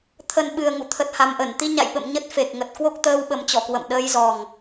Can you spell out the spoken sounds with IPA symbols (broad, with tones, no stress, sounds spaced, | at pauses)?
t̪ʰ ə˨˩ n ɓ ɨ˨˩ ə̯ ŋ ṵ˧˨ t̪ʰ ə˨˩ t̚ h a˨˩ m ʔ ə˧˩ n t̪ i˧ ɲ a̰˧˨ j ɓ ə̰˧˨ m ɲ ə˦˥ t̚ f e˨˩ k̚ ŋ ə˨˩ t̚ k w o˦˥ k̚ t̪ əː˧ w ɓ ə˨˩ m t͡ɕ ɔ˧˩ k w ə̰˧˨ m ɗ əː˧ j z ɔ˨˩ ŋ